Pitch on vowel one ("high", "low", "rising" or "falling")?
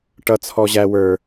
low